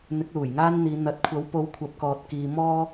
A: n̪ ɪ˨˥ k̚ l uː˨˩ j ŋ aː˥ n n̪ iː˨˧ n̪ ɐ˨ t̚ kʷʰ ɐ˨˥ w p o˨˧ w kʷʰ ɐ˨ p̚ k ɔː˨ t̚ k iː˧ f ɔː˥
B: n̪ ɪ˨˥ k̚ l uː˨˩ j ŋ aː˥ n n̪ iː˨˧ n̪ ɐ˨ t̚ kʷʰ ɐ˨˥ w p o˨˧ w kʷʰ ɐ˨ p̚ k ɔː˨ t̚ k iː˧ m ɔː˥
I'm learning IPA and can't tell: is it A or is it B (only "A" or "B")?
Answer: B